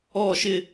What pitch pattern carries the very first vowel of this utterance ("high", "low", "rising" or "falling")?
falling